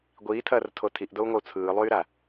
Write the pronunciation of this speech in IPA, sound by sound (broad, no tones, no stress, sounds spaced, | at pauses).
ɡʷ iː tʰ ɐː r tʰ o tʰ i ʔ d o u̯ ŋʷ ɐ u̯ t͡sʰ ɯː lˠ yː ɾ a